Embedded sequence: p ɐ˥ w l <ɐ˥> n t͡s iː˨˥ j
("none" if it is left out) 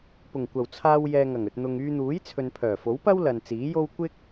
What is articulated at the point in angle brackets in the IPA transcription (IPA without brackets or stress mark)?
ɐ˨